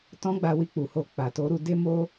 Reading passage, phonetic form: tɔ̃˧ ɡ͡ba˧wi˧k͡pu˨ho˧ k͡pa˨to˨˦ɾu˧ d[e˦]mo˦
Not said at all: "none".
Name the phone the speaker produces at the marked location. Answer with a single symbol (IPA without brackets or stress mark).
e˦